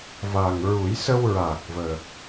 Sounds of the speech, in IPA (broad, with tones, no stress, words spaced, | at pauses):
va˨˩ŋɹu˨˩˦j sə˧wɹaː˨˩k̚ vəː˨˩k̚